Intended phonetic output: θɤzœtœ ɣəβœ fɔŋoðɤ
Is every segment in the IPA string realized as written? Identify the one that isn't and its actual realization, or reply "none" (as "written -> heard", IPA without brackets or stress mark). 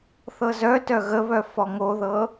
none